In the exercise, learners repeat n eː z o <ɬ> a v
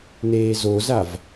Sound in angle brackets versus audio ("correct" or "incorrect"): incorrect